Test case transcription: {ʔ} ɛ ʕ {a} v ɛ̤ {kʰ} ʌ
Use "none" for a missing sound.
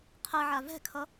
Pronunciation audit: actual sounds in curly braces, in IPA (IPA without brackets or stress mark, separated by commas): qʰ, a, kʰ